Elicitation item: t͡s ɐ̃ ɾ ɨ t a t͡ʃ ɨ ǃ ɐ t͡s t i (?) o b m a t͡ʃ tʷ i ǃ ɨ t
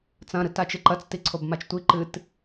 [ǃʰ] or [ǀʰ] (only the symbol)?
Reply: ǀʰ